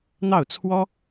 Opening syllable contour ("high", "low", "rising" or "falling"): falling